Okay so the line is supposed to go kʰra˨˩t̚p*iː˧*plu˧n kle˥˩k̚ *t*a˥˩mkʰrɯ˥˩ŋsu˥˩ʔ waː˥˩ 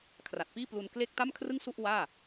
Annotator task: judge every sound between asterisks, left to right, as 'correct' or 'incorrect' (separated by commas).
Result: incorrect, correct